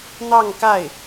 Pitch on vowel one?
falling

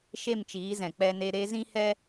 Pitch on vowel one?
falling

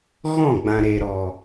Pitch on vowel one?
falling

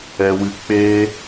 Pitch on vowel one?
high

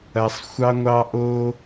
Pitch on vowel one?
low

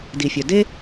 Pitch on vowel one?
low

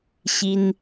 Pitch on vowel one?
high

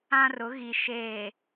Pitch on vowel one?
high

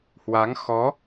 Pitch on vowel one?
rising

